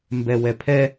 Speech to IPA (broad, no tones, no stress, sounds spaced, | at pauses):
m b ɛ w ɛ pʰ ɛ